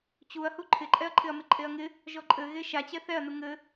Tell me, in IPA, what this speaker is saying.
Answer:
t͡ɕ u ɐ̯ h u ǃʰ ɪ ǃʼ ɛ ɐ̯ ǃʰ ɪ ɐ̯ m ɪ ǃʼ e ɐ̯ ŋ ɪ | ʒ ɔ ǃʼ ɘ ɣ e ʃ a t͡ɕ ɛ θ ɛ ɐ̯ n u ŋ ɘ

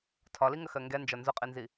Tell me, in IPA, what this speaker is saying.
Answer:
tʰ ɒ l i ŋ ə x ɜ ŋ ɡ ɛ n d͡ʒ ɒ n z ʊ qʼ i n z i

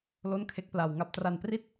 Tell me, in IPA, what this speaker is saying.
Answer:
l o˥˩ n kʰ e˦˥ k̚ p l a˨˩ w ŋ a˦˥ p̚ t r a˨˩ n p r i˥˩ t̚

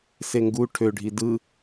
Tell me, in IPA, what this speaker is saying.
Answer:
s e ŋ ɡ u ʈʰ ø ɖʱ i d ɯ

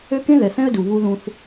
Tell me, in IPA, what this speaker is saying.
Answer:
ø˦ k ẽ˦ ð ɛ˨ θ ɛ̃˦ ə̯ d u˨ β u˦ ð ũ˦ θ

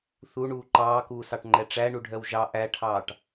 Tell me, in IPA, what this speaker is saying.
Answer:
θ u ɳ uː ǃ ɑː k uː s ɑ ʈ ŋ͡ǃ ɛ ʈ͡ʂ æ ɳ u ɖʱ ɜ w ʒ ɑ ʔ æ ʈʰ ɑː ʈ

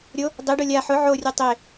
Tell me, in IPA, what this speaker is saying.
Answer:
ɾʲ o | dˤ ɪ ɖ o lʲ a ħ ʊ ʕ o rʲ u tˤ ɪ

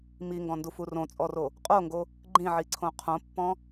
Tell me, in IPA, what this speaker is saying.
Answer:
m i ŋ ɡ ɔ̃ n d u f u r õ t͡sʼ ɔ r o | qʼ o ŋ ɡ o | ɡ͡ǃ ĩ ʕ i ǀʰ õ qʰ õ pː ɔ̃

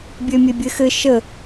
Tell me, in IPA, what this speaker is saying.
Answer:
bʲ ø mʲ e bʲ ɘ x ɘ ʃ ə

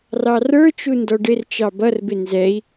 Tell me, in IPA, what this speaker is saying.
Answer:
r ɑ r ə˞ t͡ʃ u n d ɔ ɖ ɪ r t͡ʃ ɑ b ʌ r b ɪ n z ɛ i̯

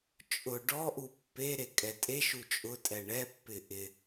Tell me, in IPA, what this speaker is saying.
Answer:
t͡ʃʼ ʊ ɖ ɔ ʔ u pː e ɾ e kʼ ɛ tʼ e ʃ u t͡ʃʼ ʊ tʼ ɛ ɳ ɛ pː ɪ ʔ ɪ

